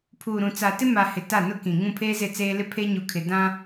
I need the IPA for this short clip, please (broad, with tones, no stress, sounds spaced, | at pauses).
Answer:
pʰ uː˨ ɾ ũ˨ t͡s a˨ t ɪ˦ m a˨ h ɪ˨ t a˦˨ n ʊ˦ k ĩ˨ ŋ ũ˦˨ pʰ eː˦ z ɪ˦˨ t͡s eː˦ l ɪ˦ pʰ eː˦ ɲ u˨ kʰ ɪ˨ d ã˦